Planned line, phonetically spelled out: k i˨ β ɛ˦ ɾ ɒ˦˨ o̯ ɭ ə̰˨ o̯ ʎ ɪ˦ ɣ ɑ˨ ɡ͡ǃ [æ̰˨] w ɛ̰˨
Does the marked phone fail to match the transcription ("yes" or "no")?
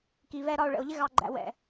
no